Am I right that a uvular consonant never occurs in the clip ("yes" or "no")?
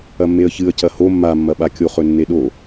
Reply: no